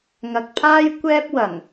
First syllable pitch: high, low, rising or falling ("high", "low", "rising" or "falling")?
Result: low